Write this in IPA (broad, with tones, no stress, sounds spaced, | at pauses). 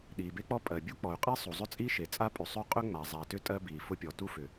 ɗ iː˩ b e˥ k͡p ɔ˥ pʼ ɜ˩ bʲ u˥ k͡p ɔ˩ y̯ qʼ i˥ sˤ u˩ zˤ ʏ˥ t͡sʼ i˥ ʃ e˩ t͡sʼ a˥ pʼ ʉ˩ sˤ ʉ˥ qʼ ʏ˥ ŋ͡m a˩ zˤ a˩ t ʏ˥ tʼ ɜ˥ b iː˩ f ʊ˥ pʲ ɔ˩ t u˥ f ʏ˩